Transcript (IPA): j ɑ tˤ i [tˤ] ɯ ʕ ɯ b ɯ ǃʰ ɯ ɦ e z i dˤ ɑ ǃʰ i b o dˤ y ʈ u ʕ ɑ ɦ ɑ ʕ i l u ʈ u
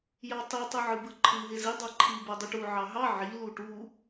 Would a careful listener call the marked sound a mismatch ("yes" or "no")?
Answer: no